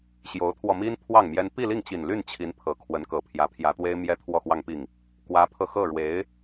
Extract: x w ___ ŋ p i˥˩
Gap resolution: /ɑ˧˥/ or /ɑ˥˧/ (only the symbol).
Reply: ɑ˥˧